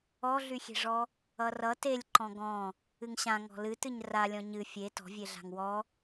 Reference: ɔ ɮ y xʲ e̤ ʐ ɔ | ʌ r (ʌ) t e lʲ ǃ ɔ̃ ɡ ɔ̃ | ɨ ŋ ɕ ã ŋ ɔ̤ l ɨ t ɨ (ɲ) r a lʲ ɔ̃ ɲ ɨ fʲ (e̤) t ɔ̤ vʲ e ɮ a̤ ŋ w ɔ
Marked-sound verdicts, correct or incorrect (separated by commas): correct, correct, incorrect